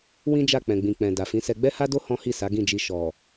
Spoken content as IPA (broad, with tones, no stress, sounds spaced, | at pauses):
w ĩ˦ d͡ʒ a˦˨ k͡p ɛ̃˨ ɡ͡b ĩ˨ k͡p ɛ̃˨ d a˨ f ĩ˨˦ s ɛ˧ ɡ͡b ɛ˦ h a˦ d o˦ h ɔ̃˦ h i˦˨ s a˨˦ ɡ ĩ˦˨ d͡ʒ i˧ ʃ ɔ˨